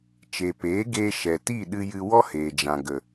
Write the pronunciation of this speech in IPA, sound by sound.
t͡ʃ e˨ p eː˨˦ ɡ eː˧ ʃ ɛ˨ t i˦˨ ɗ ɨ˧ j ɨ˧ w ɔ˦ h eː˨ d͡ʒ ã˨ ɡ ə˨

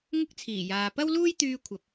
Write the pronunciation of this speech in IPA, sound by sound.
ŋ ʊ˥ k̚ t͡sʰ iː˨˩ j aː˨ p ɐ˥ w l uː˥ j t̪ yː˧ kʷʰ ɐ˨˥ p̚

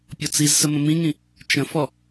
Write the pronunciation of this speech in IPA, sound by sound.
pʲ ɔ t͡s i z s ə m ə̃ m ĩ ŋ ĩ | t͡ʃ ə̃ f ɔ

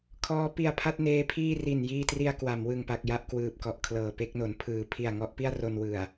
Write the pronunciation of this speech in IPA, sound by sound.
kʰ ɔː˦˥ p i˧ a̯ pʰ a˥˩ t̚ n eː˦˥ pʰ iː˥˩ r i˨˩ n j iː˧ t r i˧ a̯ k w a˩˦ m w ɯ˨˩ ŋ p a˨˩ k̚ j a˥˩ ʔ k w ɯː˨˩ p̚ k ɔ˨˩ ʔ kʰ l ɤː˨˩ p e˥˩ k̚ n o˩˦ n pʰ ɯː˩˦ pʰ i˨˩ a̯ ŋ ɔ˦˥ ʔ p i˥˩ a̯ r o˧ n w ɯ˨˩ a̯

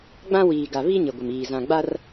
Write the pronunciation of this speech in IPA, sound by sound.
ɡ͡b ã˦ w iː˨ ɡ a˨ β i˦ ɲ ɪ˨ ɡʷ ɪ˨ m iː˨ z ã˨ ɡ͡b a˦ r

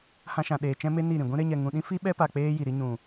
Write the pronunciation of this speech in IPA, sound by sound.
h ã˧ ʃ ã˨ ɗ eː˨ t͡ʃ ɛ̃˦ m e˦ n i˦˨ ɾ ĩ˨ ɡʷ ĩ˧ ɾ e˧ ɲ ɛ˨ ŋ ũ˨ ɗ ĩ˦ f i˦ ɓ ɛ˦ p a˧ k͡p eː˦ j i˨ ɾ i˦ ɲ ũ˨

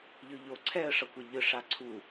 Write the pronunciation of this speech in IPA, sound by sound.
ʎ ɯ ʎ o ǀʰ ɛ ə̯ ʂ ʌ kʷ ʌ ʎ ɯ ʂ a ǀʰ u

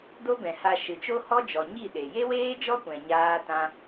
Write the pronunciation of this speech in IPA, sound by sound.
d o˦ b ɛ̃˨ h a˧ ʃ ɨ˨ t͡ʃ o˦ h ɔ˦ d͡ʒ ɔ˨ ɲ i˦˨ ɗ e˨ j e˦ w eː˦ d͡ʒ ɔ˦ kʷ ɛ̃˨ ɲ aː˦ t ã˦

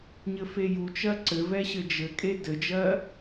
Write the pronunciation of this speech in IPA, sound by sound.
ɲ ɘ f e j u t͡ʃ ɜ ǀ ɘ v ɛ ɕ ɘ d͡ʒ ɘ kʼ e d ɘ d͡ʒ ɜ

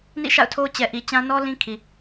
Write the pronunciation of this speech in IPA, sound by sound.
n ḭ˦˨ ʃ a̰˦˨ ʊ̯ tʰ o˦ t͡ɕ ɛ˨ ʔ i˨ t͡ɕ ã˦ n ɔ˦ l ĩ˦ kʰ i˨

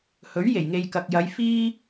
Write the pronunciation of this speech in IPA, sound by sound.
h ɵ˨˥ ɥ j e˨˩ j ŋ e˨ j k ɐ˨ k̚ j ɐ˨˧ j f iː˥

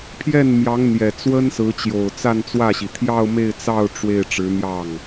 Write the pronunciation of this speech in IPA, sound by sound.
pʰ j ɛ˥˩ n m j ɑ˧˥ ŋ n̪ j ɛ˨˩ t͡s w ə˥ n s ɹ̩˧˥ t͡ɕ j o˨˩ ʊ̯ t͡s a˥˧ n t͡s w ä˥˩ ɕ i˩ t̪ʰ j ɑ˥˧ ʊ̯ m e˥˧ ɪ̯ t͡s ɑ˥˧ ʊ̯ ʈ͡ʂ w e˥˩ ɪ̯ ʈ͡ʂ ɻ̩˧˥ n̪ j ɑ˥˩ ŋ

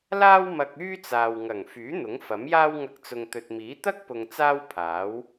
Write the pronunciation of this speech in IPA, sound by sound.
l aː˥ w m ɐ˧ k̚ yː˥ t͡s aː˨ w ŋ ɐ˨˩ ŋ f yː˨˥ n̪ ʊ˨˥ ŋ f ɐ˨˥ m j aː˥ w ŋ ɐ˧ k̚ t͡s ʊ˨ ŋ t̪ ɵ˨ t̚ m iː˨˥ t̪ ɐ˥ k̚ p ʊ˨ ŋ t͡s aː˥ w pʰ aː˨˥ w

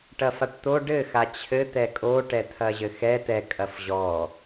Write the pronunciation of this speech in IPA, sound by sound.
ʈ ɐ f a ʈ t̪ o ɖ ɘ x a t͡ɕʰ ɘ t̪ ɛ kʼ o ʈ ɛ t̪ʰ ɐ ʑ ɘ x ɛ t̪ ɛ kʼ ɐ f ʑ ɔ

